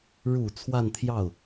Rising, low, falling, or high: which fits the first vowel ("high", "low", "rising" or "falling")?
low